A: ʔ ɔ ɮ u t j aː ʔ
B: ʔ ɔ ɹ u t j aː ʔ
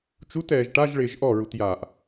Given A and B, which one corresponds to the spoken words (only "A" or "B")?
B